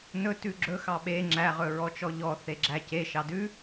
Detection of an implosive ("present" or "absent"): present